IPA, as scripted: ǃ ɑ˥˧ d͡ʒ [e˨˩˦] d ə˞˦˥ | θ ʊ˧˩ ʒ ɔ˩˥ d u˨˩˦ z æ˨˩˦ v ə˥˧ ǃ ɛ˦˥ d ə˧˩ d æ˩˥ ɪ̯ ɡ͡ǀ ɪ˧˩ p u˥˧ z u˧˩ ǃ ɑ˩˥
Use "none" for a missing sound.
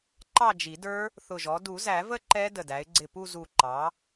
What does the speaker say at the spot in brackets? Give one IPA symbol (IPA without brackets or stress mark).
i˨˩˦